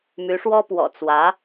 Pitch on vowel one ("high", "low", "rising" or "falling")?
rising